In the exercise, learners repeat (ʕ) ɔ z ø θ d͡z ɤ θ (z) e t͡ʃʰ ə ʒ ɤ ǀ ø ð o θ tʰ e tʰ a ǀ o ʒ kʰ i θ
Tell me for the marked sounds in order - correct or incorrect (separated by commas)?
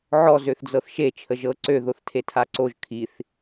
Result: correct, incorrect